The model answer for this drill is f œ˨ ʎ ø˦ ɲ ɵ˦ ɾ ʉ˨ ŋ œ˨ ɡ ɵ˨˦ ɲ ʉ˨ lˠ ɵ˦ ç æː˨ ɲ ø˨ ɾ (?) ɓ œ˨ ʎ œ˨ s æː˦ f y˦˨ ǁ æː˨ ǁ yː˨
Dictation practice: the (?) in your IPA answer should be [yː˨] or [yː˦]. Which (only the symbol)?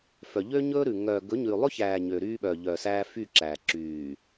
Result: yː˦